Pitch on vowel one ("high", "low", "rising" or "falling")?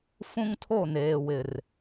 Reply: high